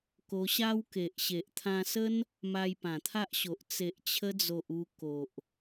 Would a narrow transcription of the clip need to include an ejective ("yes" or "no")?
no